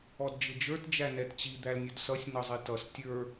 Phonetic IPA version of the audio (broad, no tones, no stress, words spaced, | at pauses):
ɔdd͡ʒɪd͡ʒə˞t d͡ʒænɛtt͡ɕi d̪ælnʲʊdsʌsʲ nʌzˤitʌs tʲə˞